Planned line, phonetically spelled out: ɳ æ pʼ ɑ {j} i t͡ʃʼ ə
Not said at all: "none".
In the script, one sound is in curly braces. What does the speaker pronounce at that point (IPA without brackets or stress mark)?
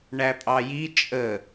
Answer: j